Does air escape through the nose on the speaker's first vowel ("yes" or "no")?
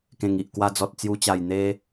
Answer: yes